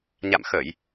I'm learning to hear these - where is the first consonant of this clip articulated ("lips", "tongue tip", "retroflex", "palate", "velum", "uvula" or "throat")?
palate